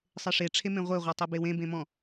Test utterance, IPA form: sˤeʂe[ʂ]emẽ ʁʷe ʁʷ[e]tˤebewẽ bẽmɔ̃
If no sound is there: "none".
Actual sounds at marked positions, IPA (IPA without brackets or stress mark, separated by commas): ʈ͡ʂʰ, e